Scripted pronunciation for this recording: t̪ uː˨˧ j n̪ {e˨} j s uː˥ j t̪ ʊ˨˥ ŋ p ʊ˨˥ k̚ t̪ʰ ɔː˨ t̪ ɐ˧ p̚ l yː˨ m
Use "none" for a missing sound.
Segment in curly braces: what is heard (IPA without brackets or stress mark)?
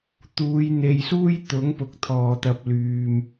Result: e˨